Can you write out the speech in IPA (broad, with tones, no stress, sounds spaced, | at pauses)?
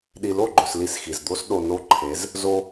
ɗ i˨ l o˦˨ ɡ͡ǃ ɵ˨ s l i˦ s x i˨ z d̪ o˦ s ɗ o˨ n o˦ ǃʰ e˨˦ z | z o˦